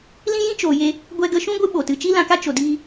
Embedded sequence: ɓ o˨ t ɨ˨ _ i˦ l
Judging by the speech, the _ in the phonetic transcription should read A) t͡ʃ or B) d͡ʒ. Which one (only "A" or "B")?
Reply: A